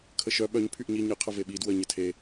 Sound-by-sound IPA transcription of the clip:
kʰəʃœ ɓœɲ pʰyʔɲi ɲə qʰəveɓi dwə ɲətʰe

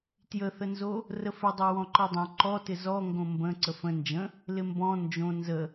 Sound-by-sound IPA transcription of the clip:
tjəθənzo | rəfɪdˤo wɔ̃ǃɔdˤõ ǃɔtɪ zɔŋɡõ mbə̃ ǀəfə̃ nd͡ʒə̃ | lɪmbɔ̃ nd͡ʒõ nzə

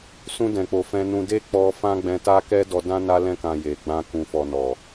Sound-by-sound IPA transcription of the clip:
sũ˧dɛ̃˨k͡po˨ fɛ̃˧nũ˧ de˦k͡pɔ˧ fã˦ɡ͡bɛ̃˧ta˦ kɛ˦dɔ˧dã˦ na˧lɛ̃˧kã˨ je˨ɡ͡bã˧ kũ˨ fɔ˨ nɔ˨

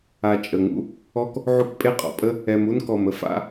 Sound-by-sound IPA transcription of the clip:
a˧t͡ʃʼə˨ŋṵ˦ | ɔ˦k | ʕu˦kpʼe˦qʼɔ̰˨pʼə˦ | ɛ˧mu˦nkɔ˨m ə˨˦fa̰˧

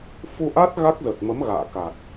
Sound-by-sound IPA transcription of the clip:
fu˧ʔa˦˥t̚ ɣa˦˥k̚zə˨˩t̚mə˨˦m ɣa̰ː˧˨ka˨˩t̚

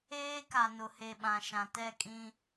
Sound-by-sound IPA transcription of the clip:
eː˦ka˨nʊ˨he˨ ɓã˨ʃã˨tɛ˦˨kʼĩ˦

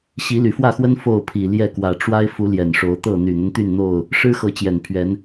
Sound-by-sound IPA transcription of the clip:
ɕi˨˦ly˨˩fwä˥˨xwə˦n fo˥˨ʊ̯pʰi˨˩ljɛ˥˨kwä˨˩ ʈ͡ʂwa˦ɪ̯fu˨˦ ljɛ˨˩nʂo˨˦ʊ̯t̪ɤ˥˨ n̪y˨˩n̪ə˦nt̪y˥˨nn̪o˥˨ʊ̯ | ʂɻ̩˦xɤ˨˦ t͡ɕjɛ˨˩npʰɥɛ˨˦n

